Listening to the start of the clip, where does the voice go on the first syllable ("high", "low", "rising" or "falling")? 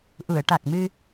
low